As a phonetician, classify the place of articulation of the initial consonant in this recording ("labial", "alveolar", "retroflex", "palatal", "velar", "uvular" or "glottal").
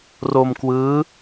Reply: alveolar